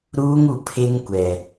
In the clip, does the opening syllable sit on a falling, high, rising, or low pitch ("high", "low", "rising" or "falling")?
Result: high